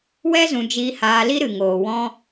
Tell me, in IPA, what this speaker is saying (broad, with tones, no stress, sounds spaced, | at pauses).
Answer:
w ɛ˦ z ũ˧ d͡ʒ iː˧ h aː˧ l i˦ ɾ ɨ˨ ŋ oː˨ w ɔ̃˦